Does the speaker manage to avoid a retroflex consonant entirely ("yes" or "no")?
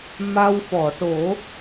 no